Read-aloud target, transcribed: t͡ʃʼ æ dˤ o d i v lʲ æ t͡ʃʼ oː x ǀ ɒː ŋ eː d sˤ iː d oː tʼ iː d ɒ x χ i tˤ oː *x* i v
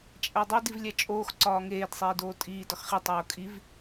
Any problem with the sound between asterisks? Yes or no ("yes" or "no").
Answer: yes